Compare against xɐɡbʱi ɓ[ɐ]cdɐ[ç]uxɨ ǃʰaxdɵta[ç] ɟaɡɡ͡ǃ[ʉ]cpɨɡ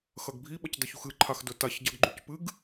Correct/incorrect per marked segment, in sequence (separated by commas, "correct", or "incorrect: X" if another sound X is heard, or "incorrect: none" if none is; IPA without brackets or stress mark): correct, correct, correct, correct